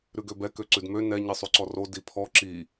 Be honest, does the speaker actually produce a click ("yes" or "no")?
yes